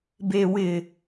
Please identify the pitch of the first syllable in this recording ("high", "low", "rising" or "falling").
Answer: low